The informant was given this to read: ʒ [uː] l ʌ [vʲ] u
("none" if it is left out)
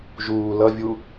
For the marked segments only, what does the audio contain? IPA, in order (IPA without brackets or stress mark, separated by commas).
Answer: uː, vʲ